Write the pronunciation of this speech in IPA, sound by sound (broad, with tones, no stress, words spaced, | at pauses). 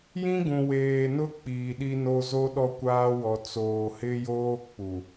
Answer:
jĩ˦ɡũ˨weː˨nʊ˦ k͡piː˨ɗi˦no˦ zo˦ɗɔ˦ kʷaː˦wɔ˨ t͡soː˨ hɪ˦joː˦ k͡pu˨